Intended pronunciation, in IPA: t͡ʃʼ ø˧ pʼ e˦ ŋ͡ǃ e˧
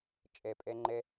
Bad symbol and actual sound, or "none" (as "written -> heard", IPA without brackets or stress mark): ø˧ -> e˧